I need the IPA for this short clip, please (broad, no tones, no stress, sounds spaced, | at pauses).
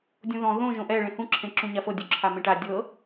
dʲ õ ð ɔ̃ ð õ ʒ õ ʔ ɛ ɭ ẽ h ũ ǁʰ ẽ ǁ ũ ɲ a f ɤ dʲ u ǁʰ a m ẽ ʈ a dʲ ɤ